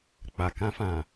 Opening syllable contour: low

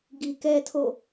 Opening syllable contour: low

